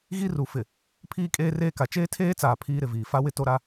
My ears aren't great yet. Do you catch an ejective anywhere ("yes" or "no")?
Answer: yes